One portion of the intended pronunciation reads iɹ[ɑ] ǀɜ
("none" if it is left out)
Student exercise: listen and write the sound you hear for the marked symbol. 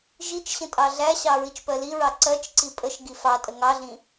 ɑ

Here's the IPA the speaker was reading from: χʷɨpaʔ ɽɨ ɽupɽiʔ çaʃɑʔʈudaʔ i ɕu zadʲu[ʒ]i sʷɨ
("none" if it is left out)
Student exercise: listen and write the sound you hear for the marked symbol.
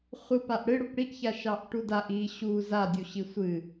ɕ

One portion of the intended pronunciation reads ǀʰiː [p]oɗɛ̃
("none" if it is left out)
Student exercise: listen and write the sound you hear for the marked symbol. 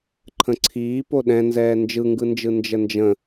p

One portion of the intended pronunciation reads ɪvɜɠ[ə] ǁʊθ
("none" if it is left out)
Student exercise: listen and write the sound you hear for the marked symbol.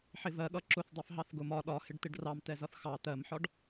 ʌ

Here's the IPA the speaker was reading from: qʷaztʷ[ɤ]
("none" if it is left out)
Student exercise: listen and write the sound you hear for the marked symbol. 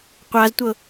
ɤ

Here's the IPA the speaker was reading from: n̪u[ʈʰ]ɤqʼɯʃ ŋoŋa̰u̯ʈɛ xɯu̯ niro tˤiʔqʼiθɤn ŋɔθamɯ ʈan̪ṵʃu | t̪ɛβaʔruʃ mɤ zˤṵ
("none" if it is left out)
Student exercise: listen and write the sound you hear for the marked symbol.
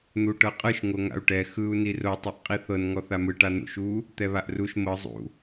ʈ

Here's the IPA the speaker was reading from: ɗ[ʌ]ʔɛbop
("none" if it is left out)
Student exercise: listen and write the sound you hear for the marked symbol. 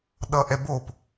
ʌ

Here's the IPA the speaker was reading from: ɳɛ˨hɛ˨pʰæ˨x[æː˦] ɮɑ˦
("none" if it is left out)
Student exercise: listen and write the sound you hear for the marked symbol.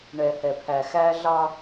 æː˦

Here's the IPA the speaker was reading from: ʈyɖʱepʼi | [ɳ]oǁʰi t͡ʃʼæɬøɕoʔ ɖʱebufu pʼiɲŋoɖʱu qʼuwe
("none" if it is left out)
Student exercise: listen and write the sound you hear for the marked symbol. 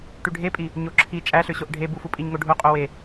ɲ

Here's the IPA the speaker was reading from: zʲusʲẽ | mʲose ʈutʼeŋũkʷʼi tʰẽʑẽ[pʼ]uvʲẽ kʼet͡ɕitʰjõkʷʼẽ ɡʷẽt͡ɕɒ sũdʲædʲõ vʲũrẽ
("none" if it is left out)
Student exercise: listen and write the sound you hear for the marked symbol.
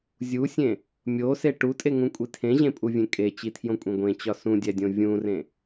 pʼ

